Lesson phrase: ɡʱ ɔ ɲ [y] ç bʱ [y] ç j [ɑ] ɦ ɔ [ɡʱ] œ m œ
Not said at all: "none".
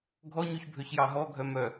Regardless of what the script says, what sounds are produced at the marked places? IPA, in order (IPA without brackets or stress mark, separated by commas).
y, ø, ɑ, ɡʱ